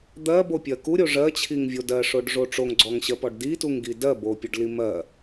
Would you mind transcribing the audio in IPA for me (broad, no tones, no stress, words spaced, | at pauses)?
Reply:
d̪ɜbopʲɜ kuɾʲo ʐɜt͡ɕʰiŋvʲo dɜʂoɖʐo ʈ͡ʂoŋɡ͡ǀɔŋɕɜpɔɖ dituŋɡi dɜbopʲoɖli mɜ